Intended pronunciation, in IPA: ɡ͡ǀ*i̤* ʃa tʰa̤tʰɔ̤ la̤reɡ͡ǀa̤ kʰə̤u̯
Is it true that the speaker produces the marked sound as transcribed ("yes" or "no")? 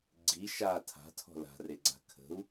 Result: no